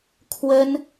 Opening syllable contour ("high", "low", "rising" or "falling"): high